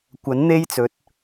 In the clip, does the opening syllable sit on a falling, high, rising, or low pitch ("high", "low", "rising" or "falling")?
rising